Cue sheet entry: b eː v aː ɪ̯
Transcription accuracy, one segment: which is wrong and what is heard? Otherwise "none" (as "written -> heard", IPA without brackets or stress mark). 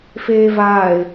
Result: b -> f